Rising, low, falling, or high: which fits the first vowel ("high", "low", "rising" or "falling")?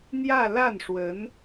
falling